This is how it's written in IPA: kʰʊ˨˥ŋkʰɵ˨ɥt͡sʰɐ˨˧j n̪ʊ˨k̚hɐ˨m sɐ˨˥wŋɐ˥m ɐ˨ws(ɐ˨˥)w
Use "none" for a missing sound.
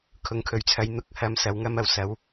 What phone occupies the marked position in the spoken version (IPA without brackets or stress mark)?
ɐ˨˥